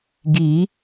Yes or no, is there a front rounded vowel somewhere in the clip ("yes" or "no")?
no